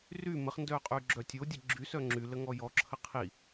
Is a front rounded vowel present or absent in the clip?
present